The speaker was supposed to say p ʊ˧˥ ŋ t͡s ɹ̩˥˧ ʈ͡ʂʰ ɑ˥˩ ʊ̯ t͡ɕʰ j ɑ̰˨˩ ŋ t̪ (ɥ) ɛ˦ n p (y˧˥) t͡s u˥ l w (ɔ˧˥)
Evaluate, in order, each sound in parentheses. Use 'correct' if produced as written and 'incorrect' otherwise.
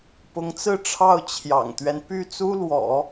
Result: correct, incorrect: y˥˩, incorrect: ɔ̰˨˩˦

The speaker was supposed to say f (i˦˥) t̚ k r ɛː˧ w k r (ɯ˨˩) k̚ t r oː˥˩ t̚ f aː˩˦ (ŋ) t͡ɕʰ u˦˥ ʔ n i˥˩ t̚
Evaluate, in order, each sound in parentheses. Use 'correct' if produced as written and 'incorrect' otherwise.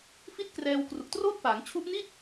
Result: incorrect: i˥˩, incorrect: u˨˩, correct

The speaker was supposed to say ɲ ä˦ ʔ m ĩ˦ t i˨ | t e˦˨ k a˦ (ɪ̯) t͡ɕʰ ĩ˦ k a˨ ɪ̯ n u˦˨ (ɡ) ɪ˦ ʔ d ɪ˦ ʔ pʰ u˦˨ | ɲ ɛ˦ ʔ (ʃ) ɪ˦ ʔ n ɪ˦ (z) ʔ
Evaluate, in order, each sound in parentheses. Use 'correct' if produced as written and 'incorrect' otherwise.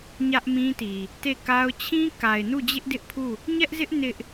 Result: incorrect: ʊ̯, incorrect: d͡ʑ, incorrect: z, incorrect: none

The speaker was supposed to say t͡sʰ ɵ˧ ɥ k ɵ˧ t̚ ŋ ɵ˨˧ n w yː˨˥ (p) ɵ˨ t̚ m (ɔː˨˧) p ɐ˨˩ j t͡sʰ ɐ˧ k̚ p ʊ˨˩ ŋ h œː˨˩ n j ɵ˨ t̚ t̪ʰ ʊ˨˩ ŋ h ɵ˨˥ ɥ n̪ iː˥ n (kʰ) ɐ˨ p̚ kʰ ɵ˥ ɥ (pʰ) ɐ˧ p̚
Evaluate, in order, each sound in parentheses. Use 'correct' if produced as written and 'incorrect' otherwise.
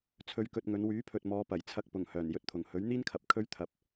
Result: incorrect: pʰ, correct, correct, incorrect: t̪ʰ

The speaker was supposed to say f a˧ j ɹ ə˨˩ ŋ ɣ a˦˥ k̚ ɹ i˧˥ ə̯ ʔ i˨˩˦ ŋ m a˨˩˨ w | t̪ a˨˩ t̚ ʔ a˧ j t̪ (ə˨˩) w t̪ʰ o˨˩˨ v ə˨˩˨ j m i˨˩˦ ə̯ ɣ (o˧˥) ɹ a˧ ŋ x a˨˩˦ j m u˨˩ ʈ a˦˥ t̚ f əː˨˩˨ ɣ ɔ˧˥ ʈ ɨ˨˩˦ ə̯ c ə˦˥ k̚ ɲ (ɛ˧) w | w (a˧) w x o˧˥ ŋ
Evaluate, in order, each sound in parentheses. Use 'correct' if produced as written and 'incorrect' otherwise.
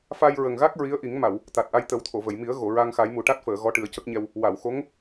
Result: incorrect: ə˨˩˦, incorrect: o˨˩˨, correct, incorrect: a˨˩˨

